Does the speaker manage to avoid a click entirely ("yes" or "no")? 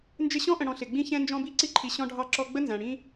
no